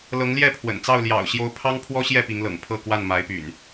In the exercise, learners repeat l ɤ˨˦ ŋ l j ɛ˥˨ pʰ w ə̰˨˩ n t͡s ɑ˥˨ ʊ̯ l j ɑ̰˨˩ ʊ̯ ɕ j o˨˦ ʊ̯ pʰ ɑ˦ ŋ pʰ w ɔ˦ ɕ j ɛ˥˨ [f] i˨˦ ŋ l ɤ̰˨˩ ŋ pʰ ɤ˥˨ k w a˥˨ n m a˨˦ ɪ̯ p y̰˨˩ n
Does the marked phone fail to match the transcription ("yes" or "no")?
yes